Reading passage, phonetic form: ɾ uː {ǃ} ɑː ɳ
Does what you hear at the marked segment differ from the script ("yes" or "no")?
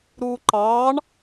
no